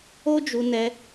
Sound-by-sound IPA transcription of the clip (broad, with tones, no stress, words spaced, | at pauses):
o˦d͡ʒu˧ nɛ˧